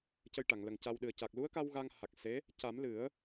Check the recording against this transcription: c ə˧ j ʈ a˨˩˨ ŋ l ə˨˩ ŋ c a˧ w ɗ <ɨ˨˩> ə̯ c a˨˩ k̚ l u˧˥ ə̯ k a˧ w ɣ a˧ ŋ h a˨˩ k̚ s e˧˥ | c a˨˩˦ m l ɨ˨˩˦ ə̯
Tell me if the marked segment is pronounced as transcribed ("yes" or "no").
yes